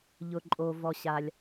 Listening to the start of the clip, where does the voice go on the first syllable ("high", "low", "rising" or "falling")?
high